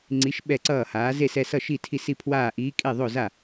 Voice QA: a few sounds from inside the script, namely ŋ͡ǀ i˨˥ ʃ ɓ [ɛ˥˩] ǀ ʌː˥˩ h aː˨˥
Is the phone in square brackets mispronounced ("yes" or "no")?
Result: no